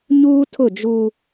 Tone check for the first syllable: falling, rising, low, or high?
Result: high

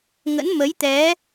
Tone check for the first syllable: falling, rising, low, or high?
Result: rising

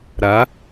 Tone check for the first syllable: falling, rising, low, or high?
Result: rising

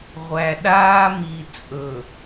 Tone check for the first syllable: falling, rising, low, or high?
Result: low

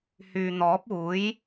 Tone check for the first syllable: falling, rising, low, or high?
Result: low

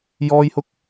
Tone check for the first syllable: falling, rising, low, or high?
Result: high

